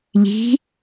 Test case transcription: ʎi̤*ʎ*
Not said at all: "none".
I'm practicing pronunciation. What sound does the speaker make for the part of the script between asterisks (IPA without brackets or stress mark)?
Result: none